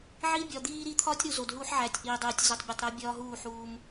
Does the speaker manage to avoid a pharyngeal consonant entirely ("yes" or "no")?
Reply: no